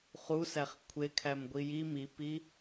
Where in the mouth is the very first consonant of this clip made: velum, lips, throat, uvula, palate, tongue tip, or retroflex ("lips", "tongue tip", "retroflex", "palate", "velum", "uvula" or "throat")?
uvula